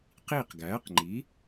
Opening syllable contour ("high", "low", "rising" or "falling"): falling